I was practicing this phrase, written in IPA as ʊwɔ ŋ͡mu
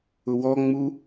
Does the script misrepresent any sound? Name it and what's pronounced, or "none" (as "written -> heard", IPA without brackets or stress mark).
none